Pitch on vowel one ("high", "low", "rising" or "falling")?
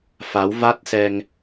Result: rising